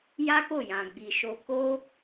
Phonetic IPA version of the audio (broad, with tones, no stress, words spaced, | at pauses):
ja˦ko˦˨jã˨ ɡ͡bi˨ʃo˧ ko˦